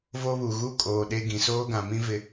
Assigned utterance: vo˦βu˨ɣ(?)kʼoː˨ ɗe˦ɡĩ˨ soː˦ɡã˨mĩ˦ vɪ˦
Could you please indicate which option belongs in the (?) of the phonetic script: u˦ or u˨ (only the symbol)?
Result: u˦